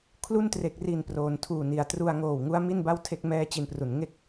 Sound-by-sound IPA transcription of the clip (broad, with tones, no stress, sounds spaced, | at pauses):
kʰ l u˥˩ n t r e˨˩ k̚ r i˨˩ n p r oː˩˦ n tʰ uː˨˩ n i˩˦ a̯ t r u˧ a̯ ŋ oː˨˩ w ŋ u˦˥ a̯ m i˥˩ n b a˥˩ w tʰ e˥˩ k̚ m ɛː˥˩ t͡ɕ i˧ n p r u˩˦ n ŋ e˥˩ k̚